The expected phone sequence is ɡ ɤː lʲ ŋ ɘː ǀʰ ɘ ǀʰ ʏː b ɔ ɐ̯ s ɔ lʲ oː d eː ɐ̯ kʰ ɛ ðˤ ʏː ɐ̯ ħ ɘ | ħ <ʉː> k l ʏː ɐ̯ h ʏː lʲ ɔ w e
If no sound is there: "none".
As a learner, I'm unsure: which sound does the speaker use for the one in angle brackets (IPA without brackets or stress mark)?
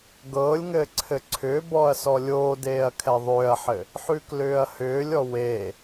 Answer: ʉ